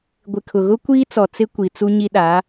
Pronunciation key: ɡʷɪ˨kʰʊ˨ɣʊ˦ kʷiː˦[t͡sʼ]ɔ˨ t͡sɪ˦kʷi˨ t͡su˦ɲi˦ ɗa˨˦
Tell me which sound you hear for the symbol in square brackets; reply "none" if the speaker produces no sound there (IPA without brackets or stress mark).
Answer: t͡s